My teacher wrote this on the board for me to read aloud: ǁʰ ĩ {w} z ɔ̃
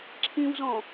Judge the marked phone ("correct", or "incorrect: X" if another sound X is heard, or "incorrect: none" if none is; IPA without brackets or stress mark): correct